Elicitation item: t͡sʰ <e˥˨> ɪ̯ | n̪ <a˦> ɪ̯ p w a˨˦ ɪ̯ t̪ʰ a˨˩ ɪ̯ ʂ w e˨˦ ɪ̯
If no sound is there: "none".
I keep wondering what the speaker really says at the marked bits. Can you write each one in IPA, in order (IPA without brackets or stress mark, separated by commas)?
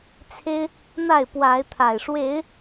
e˦, a˥˨